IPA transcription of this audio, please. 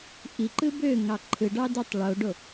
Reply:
ʔ i ǃ ɯ b ø ŋ ɑ ǃʰ ɯ ɖ ɑ d y tˤ ɭ o ɖ o

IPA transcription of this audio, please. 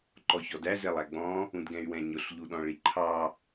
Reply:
ǃ ɔ ç ɔ d æ z ɛ lˠ æ ɡ͡b ɔ̃ | ũ d ɡ ɛ̃ y̯ w ɛ̃ ɲ ʊ ɬ ʎ u ɗ ɔ̃ ɭ i ǃʰ ɑ

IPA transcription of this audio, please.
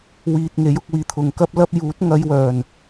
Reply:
w iː˨ t̚ ŋ e˨˥ j ʊ˧ k̚ w iː˨ t̪ʰ ʊ˨ ŋ k ɐ˥ p̚ l ɐ˥ p̚ j uː˨˥ t̚ ŋ ɐ˧ j w œː˨˩ n

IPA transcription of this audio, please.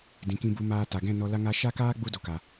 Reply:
d ĩ˨ k ĩ˧ b u˧ m aː˧ t a˨ ɡ ɛ̃˦˨ n ɔ˧ l a˧ ŋ a˧ ʃ a˦ k aː˦ ɡ͡b u˦ d o˨ k a˨

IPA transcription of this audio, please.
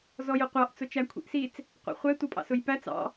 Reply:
z ɔ j ʊ qʷ ɑ ʔ t͡s ʊ t͡ʃ æ kʷʰ ḭ ʔ s i t͡s | qʷ ɑ̰ χʷ ɛ tʷ ʌ pʼ ɑ̰ s ʊ j p æ t͡s ɑ̰

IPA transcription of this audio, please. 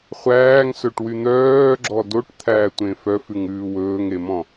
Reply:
χʷ æː ŋ s ɵ ʈ w y n̪ œː ɡ͡ǁ ɔ d o ʈ t̪ʰ æː tʷ ẽ f œ f ʉ ŋ ʉː w ɵː ŋ e m ɔ̃

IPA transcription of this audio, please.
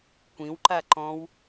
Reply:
kʷ ĩ w ǃ a ǃ ɔ̃ w

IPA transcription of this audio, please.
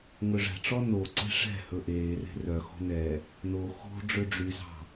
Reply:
ŋ ɵ ʐ ɛ̤ ʈ͡ʂ ɔ n o ǀ e̤ ʂ ɛ̤ h ɵ ʔ eː r e̤ r œ x o̤ n ɛ | n o x o̤ ɖ͡ʐ ø ɖ͡ʐ y z ɑ̤

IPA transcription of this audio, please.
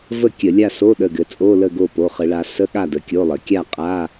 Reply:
v ə˥˨ kʲ ə˧˩˧ lʲ a˥˨ s o˧˥˧ ɗ ə˩˧˩ ɡ ɘ˩˧ t͡sʼ o˧˥˧ l ə˥˨ ɡ o˥˨ p o˩˧˩ χ ə˧˩˧ ɭ a˩˧ s ə˧˥˧ ɠ a˥˨ d ə˩˧˩ kʲ o˧˥˧ lˠ ɘ˩˧ kʲ a˥˨ qʼ a˧˥˧

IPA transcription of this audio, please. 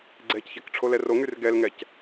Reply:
ɡ͡ǀ ɛ c ç ɛ k ʈ͡ʂʰ o l ɛ r o ŋ y r ɡ ɛ l ŋ ɛ c

